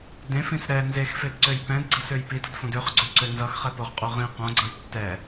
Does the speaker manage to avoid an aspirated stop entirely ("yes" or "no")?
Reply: yes